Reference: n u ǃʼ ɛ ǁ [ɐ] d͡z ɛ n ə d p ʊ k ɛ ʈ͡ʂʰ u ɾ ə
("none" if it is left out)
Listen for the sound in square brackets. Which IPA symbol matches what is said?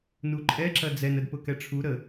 ɐ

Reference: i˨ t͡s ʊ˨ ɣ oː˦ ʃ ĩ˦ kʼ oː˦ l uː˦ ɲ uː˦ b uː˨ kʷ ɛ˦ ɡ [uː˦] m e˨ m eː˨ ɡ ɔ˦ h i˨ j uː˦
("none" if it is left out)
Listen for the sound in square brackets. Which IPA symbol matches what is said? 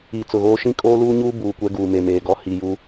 uː˨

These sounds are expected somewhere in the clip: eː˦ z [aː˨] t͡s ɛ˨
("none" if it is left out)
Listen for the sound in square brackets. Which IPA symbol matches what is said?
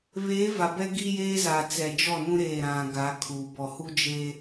aː˨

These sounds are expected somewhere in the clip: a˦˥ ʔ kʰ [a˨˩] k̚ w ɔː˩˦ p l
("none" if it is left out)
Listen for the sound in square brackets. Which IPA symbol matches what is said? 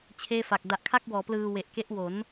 a˥˩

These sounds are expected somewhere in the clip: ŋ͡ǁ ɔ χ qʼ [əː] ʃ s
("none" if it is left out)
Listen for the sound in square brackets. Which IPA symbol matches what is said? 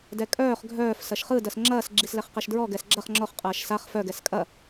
ɐː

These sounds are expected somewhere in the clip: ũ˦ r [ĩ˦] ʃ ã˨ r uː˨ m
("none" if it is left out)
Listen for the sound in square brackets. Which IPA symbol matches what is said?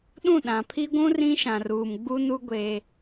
ĩ˦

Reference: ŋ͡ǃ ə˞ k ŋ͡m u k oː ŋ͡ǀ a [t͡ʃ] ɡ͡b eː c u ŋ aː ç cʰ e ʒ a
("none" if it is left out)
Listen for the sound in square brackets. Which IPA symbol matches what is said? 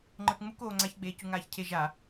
ç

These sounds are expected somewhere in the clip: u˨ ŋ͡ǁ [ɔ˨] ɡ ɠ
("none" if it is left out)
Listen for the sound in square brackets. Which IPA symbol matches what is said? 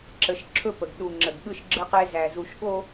ə˨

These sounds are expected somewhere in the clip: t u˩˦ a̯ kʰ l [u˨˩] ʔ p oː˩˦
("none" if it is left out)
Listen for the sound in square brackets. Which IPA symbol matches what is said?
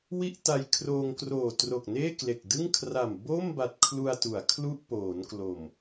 u˥˩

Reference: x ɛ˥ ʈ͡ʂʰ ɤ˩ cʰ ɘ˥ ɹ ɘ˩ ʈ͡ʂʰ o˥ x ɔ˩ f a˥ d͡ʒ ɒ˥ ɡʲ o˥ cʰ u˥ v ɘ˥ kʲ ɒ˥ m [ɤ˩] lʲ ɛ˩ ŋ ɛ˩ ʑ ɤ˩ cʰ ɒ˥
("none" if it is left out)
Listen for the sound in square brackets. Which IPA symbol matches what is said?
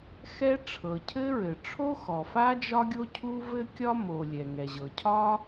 o˩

